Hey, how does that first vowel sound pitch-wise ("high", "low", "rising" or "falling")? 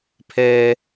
high